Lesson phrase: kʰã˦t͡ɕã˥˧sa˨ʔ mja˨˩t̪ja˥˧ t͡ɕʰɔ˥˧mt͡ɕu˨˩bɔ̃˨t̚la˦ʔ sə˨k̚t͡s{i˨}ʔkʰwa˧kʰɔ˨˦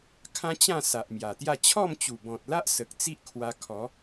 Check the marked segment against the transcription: incorrect: i˦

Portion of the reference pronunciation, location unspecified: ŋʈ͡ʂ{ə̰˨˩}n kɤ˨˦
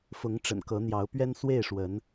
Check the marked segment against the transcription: correct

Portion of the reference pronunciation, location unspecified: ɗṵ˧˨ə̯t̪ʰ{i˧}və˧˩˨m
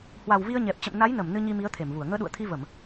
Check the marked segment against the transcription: correct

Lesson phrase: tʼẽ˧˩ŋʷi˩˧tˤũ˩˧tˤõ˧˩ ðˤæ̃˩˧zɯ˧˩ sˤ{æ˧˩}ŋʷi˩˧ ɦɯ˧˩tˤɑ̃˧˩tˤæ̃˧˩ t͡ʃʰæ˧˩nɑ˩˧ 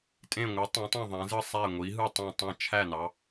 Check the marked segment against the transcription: correct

